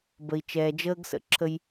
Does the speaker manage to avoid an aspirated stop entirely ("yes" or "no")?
no